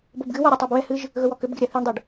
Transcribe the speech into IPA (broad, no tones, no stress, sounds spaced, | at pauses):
b o b ɡ ɨ w ɔ ɾʲ e tˤ e b w ɛ h ɨ ʒ | ɣ ɵ w ɔ k ʏ b ɡ ɪ ɾʲ a θ i ɳ dˤ ɛ ɖ